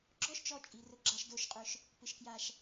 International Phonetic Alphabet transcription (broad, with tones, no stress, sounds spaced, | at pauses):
ɡ͡ǁ ɔ˦ ʃ t͡ʃ ɔ˧ t͡ʃʼ i˨ r ʊ˨ ɡ͡ǁ a˨ ʃ d o˨ ʃ qʼ ʊ˨ ʃ | p ɪ˨ ʃ k j a˨ ʃ